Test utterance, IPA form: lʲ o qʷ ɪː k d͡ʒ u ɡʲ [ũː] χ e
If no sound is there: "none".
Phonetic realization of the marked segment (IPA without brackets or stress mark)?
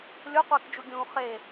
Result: ũː